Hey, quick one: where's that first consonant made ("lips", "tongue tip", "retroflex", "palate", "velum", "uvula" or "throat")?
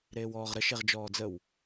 tongue tip